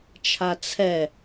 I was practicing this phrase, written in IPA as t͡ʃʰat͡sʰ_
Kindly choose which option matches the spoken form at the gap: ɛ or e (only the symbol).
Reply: ɛ